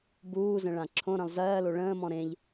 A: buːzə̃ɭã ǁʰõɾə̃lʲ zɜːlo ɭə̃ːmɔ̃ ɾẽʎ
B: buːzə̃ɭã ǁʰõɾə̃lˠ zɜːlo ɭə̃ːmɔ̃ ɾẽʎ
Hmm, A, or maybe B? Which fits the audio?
B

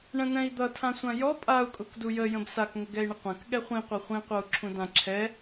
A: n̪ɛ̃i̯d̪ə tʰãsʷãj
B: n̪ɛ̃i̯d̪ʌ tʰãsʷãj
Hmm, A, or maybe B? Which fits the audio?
B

